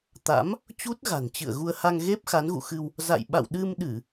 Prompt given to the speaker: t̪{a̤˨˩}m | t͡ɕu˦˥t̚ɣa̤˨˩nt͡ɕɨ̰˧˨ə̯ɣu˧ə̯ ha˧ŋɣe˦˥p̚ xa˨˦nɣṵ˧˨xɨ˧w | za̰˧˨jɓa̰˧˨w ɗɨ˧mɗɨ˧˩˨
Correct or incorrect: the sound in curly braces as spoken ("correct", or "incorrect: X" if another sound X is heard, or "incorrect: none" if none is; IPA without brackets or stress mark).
incorrect: a̰˧˥